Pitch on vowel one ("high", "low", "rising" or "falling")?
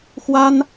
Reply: high